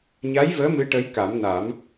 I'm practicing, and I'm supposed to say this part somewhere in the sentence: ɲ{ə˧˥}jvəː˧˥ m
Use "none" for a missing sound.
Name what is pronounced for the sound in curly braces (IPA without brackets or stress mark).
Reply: a˧˥